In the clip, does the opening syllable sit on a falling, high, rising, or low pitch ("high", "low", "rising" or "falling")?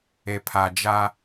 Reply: low